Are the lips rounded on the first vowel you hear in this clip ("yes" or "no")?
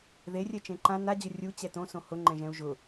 no